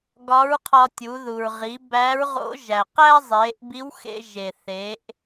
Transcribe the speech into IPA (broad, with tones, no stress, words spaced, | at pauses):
ɡɒ˧˥ɹqʰɒ˧tʲu˩˧ ðu˩ɹʁi˩˧ bæ˧˥ɹʁo̰˧˥ ʒæ˩qæ˥ zˤe˩˧ʔbi˧˥wxḛ˧ ʒe˩θe˩˧ʔ